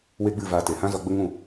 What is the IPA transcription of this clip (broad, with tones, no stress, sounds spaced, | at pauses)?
w e˦ ɡ͡b ɨ˦˨ v a˧ t e˨ h ã˦ z ɔ˧ ɡ͡b ə˦ ŋ ũ˦˨